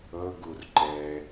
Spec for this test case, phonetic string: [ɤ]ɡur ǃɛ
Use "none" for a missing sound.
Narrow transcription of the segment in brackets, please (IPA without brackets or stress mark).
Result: ɤ